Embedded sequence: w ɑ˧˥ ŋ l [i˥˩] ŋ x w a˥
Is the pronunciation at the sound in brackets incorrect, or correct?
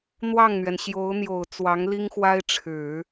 incorrect: i˥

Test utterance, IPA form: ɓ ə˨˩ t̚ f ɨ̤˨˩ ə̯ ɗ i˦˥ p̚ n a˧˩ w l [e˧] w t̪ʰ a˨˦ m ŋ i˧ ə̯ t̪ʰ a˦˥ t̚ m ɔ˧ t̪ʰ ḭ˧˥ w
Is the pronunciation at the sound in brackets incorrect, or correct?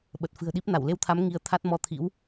correct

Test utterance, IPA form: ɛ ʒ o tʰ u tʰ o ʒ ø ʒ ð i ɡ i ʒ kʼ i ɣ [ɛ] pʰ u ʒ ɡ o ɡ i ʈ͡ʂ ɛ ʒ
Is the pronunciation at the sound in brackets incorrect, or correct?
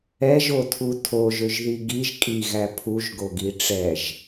incorrect: æ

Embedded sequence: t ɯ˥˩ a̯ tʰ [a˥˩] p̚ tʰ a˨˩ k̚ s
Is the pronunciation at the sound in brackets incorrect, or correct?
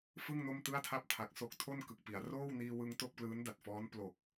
correct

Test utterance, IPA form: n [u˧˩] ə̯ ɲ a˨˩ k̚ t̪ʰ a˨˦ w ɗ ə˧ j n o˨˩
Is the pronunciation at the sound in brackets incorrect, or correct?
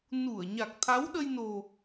correct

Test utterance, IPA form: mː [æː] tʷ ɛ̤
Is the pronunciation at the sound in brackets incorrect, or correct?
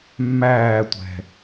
correct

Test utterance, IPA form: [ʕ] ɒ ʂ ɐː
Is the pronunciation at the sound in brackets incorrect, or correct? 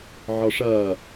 correct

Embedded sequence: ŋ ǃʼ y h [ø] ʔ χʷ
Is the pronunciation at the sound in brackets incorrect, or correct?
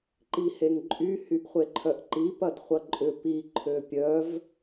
incorrect: y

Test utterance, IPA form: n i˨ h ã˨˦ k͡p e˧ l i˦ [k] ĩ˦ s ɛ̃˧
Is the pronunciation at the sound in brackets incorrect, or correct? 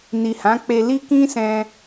correct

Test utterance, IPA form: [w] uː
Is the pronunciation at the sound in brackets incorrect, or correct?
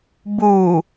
incorrect: b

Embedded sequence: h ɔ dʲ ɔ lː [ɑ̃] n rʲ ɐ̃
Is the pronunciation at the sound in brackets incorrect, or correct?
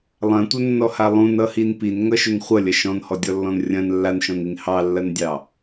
incorrect: ɔ̃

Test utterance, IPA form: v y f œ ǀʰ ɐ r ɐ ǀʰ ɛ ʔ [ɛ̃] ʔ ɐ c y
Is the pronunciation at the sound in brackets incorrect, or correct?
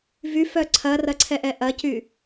incorrect: ɛ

